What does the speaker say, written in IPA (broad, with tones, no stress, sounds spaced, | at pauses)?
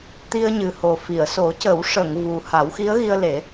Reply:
t̪ i˧ ə̯ ɲ ɨ˨˩ h o˨˩ f i˨˩˨ ə̯ s o˨˩˦ c ə˨˩˦ w ʂ ə˨˩˨ ŋ v u˨˩ h a˨˩˦ w x i˧˥ ə̯ ɣ i˧ ə̯ l e˨˩˦